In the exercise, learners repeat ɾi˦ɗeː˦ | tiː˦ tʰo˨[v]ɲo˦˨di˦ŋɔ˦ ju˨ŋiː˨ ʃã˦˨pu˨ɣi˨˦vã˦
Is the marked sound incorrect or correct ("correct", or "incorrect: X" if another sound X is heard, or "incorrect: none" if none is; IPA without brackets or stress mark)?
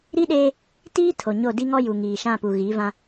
incorrect: none